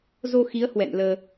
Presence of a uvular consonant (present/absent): absent